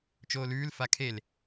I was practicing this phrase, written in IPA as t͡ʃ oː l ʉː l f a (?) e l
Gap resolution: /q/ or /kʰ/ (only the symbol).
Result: kʰ